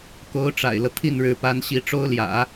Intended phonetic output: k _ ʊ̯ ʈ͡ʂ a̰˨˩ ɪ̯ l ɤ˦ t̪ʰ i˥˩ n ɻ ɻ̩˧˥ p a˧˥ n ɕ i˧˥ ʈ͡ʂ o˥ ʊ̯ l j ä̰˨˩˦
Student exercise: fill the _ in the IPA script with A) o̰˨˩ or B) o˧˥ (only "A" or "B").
B